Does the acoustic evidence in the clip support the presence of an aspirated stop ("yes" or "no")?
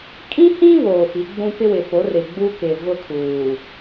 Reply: yes